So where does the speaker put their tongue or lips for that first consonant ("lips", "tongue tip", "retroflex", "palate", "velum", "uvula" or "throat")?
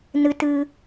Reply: tongue tip